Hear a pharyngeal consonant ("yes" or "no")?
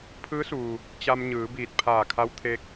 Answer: no